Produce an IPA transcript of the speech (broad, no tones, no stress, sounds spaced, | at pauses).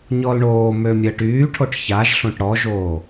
ɲ ɔ l ɳ oː m ø mʲ əː ʈ yː ʈʰ o ʈ ç a ʒ ɬ õ ʈ ɽ ɔ ʒ oː